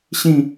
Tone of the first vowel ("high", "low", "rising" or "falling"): high